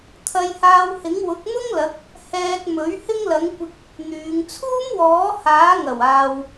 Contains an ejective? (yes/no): no